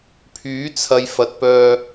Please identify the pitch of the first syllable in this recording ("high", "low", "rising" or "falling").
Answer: rising